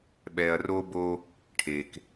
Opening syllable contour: low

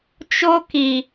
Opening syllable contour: high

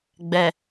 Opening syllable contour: low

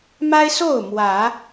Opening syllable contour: high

